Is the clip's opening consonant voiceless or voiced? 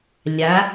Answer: voiced